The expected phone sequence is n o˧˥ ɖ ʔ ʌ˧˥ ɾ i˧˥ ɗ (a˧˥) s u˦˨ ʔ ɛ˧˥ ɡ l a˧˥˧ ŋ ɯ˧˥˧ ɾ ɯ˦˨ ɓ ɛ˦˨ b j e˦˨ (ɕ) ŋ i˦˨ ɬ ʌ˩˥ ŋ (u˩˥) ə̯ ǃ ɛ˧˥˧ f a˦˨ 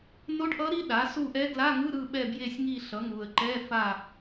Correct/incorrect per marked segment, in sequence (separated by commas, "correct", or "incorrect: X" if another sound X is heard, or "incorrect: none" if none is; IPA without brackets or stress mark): incorrect: a˩˥, incorrect: sʲ, incorrect: u˨